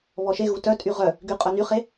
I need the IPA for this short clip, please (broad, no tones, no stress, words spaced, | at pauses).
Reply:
βɔʃeɣu tœtʼy ʁœ | ɡyqʼœnyχe